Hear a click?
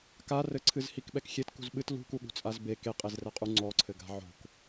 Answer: yes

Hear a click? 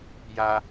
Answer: no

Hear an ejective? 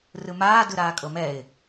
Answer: yes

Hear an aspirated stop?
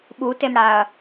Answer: no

